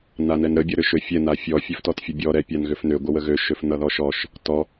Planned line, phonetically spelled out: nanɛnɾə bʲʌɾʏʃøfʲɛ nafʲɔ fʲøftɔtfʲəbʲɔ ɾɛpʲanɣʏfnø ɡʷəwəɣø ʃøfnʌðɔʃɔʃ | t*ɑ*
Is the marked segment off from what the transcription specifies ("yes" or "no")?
yes